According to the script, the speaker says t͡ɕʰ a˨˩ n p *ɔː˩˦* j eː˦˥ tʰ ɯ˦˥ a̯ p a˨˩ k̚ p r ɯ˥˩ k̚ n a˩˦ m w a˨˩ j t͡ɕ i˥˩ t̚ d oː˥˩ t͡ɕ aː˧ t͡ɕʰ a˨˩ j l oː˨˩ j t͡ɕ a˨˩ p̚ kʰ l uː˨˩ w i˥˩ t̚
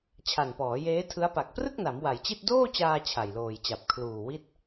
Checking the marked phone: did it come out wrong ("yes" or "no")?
no